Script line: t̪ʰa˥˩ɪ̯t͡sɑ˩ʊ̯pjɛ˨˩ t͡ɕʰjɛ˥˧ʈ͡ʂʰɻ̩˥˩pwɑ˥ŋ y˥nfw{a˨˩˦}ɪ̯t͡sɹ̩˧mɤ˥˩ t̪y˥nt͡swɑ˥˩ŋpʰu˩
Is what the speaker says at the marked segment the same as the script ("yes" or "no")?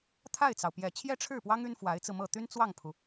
no